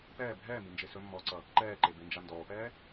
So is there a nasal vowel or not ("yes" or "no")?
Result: no